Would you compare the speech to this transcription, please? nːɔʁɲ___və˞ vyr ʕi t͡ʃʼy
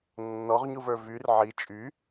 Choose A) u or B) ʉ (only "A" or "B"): A